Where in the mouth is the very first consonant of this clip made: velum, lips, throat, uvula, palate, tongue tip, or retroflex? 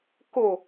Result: velum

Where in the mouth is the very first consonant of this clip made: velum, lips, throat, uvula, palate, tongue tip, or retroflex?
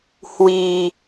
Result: throat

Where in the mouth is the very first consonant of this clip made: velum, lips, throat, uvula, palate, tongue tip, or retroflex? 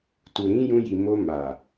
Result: tongue tip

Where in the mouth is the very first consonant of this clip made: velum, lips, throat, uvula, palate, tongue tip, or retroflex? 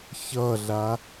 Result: palate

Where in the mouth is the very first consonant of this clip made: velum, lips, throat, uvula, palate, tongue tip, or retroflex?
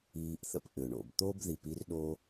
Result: throat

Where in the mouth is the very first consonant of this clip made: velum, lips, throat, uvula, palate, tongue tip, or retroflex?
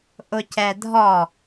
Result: throat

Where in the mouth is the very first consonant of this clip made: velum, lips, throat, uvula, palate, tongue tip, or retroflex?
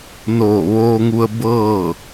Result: tongue tip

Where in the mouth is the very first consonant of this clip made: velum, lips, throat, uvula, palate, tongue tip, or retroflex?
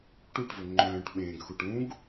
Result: retroflex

